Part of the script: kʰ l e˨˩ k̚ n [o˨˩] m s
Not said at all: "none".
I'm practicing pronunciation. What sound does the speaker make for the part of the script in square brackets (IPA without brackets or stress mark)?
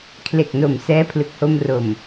o˨˩